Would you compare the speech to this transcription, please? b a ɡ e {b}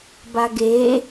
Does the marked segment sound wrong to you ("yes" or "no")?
yes